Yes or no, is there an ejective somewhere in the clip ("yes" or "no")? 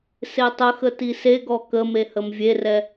no